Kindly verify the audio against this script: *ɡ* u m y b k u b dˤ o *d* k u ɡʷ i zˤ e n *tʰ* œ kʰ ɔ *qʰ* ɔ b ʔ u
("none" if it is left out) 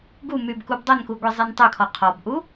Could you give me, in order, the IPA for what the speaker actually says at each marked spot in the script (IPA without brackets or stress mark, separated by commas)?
ɡ, n, tˤ, qʰ